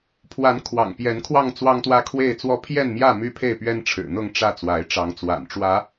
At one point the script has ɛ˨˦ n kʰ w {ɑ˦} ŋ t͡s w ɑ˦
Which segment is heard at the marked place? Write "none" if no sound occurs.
ɑ˥˨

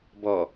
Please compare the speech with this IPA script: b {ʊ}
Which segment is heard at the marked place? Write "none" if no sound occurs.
ɔ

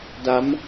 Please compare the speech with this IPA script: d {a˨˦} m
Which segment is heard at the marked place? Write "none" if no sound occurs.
a˨˦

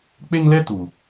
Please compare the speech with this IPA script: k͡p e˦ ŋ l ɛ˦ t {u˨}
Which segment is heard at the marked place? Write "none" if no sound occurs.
u˨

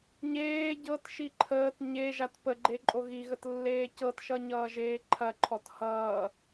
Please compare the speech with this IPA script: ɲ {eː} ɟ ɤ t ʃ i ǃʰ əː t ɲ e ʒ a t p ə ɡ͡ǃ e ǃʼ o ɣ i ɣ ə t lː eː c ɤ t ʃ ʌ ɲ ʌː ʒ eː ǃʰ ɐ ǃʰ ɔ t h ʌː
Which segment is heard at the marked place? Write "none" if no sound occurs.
eː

